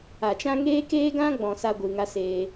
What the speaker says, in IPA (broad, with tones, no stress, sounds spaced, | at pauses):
a˨ t͡ʃ ã˦ ŋ eː˦ k eː˦ ɡ ã˦ ɡ͡b ɔ̃˨ s a˧ ɡʷ ɨ˨ ŋ a˦ s eː˧